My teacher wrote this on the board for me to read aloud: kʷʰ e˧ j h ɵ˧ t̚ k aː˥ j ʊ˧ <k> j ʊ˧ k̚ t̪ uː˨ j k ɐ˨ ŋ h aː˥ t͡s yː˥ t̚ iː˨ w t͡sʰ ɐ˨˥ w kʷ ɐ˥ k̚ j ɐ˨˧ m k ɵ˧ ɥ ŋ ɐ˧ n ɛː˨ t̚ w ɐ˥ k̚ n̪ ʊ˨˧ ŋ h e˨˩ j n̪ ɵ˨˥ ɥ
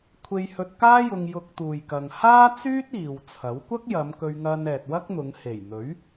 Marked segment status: incorrect: ŋ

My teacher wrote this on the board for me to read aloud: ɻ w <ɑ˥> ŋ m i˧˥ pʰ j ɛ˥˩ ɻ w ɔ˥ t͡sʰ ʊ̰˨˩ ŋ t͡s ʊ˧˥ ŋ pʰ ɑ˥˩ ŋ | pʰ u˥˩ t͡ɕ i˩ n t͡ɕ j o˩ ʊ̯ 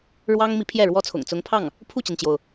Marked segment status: correct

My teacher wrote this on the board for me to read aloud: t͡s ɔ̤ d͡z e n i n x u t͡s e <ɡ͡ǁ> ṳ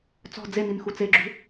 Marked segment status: correct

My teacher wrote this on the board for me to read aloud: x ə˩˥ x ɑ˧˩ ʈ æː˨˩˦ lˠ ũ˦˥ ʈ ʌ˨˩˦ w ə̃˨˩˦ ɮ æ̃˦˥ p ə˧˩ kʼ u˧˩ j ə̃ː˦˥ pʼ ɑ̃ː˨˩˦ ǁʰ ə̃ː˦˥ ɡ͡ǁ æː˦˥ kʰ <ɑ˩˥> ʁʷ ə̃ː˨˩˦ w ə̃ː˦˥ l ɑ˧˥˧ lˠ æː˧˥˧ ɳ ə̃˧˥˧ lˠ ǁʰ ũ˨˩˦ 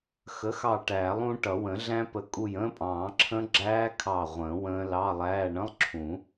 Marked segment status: incorrect: ɑ˧˩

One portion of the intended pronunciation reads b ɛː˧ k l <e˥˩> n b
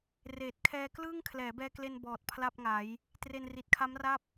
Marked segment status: incorrect: e˧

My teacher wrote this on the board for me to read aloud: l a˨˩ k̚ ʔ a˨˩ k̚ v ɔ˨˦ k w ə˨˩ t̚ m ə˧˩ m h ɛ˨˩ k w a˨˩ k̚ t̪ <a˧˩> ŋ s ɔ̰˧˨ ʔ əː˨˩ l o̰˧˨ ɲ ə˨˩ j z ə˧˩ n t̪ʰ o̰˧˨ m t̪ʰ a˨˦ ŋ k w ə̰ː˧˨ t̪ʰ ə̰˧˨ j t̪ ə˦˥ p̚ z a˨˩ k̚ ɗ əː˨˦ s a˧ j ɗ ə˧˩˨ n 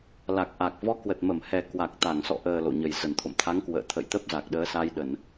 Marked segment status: correct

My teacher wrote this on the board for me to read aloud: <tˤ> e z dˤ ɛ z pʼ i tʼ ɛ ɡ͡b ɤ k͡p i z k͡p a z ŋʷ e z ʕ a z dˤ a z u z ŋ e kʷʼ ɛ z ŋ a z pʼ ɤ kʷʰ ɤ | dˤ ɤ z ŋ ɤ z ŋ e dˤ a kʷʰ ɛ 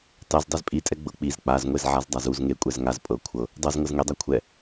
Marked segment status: correct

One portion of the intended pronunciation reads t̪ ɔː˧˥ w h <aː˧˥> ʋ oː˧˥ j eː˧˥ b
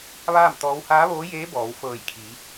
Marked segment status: correct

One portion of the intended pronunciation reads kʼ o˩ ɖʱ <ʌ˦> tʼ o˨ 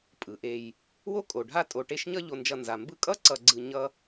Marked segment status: incorrect: a˦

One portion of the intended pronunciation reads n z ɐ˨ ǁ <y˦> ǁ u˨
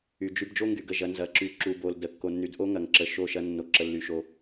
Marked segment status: incorrect: y˨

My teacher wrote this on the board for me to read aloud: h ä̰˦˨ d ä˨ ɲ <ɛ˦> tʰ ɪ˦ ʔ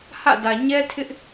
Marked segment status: correct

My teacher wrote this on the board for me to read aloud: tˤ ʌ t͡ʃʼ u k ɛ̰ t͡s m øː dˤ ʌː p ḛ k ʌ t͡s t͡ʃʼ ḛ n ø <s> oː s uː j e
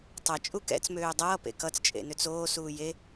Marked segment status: incorrect: t͡s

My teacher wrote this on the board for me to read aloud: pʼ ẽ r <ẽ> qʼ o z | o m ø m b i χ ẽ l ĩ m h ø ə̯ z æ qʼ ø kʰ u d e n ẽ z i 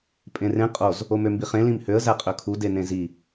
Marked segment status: correct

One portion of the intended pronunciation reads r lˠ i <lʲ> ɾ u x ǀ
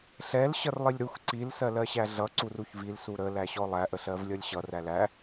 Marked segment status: correct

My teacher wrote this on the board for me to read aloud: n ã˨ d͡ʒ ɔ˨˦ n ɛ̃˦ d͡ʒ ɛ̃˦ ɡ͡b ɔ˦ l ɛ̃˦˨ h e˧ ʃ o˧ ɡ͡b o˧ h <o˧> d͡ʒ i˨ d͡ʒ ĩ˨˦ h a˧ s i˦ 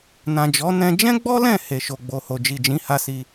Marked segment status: correct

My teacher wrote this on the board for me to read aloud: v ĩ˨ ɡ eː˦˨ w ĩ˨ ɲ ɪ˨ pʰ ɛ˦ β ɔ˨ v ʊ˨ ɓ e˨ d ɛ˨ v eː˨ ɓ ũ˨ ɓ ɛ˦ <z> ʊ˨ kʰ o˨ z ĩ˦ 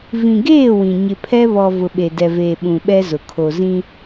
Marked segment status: correct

